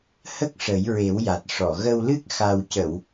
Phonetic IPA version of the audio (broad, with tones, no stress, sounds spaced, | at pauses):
h ə˦˥ k̚ ʂ ə˨˩˦ j ɹ e˨˩˦ w j a˨˩ t̚ ʂ ɔ˨˩˨ ɣ ə˧ w l ɨ˦˥ k̚ x a˨˩ w c ə˨˩˨ w